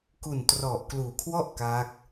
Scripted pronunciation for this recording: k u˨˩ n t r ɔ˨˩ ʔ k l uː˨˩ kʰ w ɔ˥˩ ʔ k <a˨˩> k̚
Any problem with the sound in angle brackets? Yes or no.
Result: yes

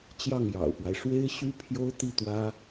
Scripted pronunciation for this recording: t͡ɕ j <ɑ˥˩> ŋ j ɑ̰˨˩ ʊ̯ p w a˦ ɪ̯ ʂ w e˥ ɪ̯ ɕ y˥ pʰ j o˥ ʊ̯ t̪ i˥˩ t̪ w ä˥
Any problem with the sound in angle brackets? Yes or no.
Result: no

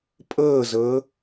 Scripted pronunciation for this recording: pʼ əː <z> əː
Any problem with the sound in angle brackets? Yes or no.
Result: no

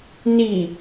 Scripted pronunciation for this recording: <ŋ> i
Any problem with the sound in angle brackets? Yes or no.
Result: yes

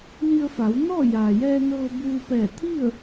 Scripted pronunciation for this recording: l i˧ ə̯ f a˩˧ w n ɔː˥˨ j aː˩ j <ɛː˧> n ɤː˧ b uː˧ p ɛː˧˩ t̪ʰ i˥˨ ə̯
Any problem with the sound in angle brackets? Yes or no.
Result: no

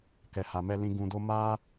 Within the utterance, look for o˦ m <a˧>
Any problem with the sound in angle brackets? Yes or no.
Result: yes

